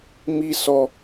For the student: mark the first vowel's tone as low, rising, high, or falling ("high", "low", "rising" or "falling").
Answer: high